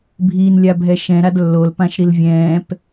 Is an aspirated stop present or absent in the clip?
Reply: absent